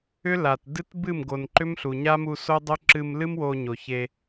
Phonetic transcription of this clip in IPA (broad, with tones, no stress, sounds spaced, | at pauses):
ʏ˦ l a˨ t d ɨ˦ t b ɨ˦˨ m ɡ o˨ n ǃ ʏ˦ m ɬ u˨ ɲ a˦ m u˧ s o˦ dˤ o˦ ǁ ɨ˧ m l ɨ˦ m w o˧ ɲ o˨ ç e˧